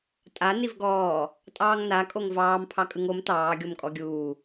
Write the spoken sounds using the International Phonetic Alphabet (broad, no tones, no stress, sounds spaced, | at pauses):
tʼ a n i v ɡ ɔː | tʼ ɑː ŋ n a kʼ o ŋ v ɑː m pʰ ɑ kʼ ɯ ŋ o m t̪ ɑː ɡʲ o m kʼ ɔ ɡʲ uː